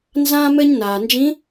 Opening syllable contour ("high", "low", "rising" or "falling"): high